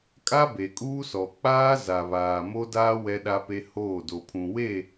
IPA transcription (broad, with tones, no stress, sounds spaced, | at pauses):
kʼ a˦ b e˨ kʼ uː˦ s ɔ˨ k͡p aː˦ z a˨ β aː˨ m o˦ d aː˦ w ɛ˦ ɗ a˦ p e˦ h oː˦˨ d o˨ pʰ ũ˨ w e˦˨